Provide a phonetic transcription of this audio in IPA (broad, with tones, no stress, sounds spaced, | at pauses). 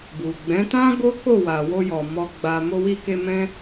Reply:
b u˨ ɡ͡b ɛ̃˨˦ t ã˦ ɡ o˦ k o˦˨ w a˨ w o˧ j ɔ˨ m ɔ˨ ɡ͡b a˨ m o˧ w i˧ k e˧ m ɛ̃˦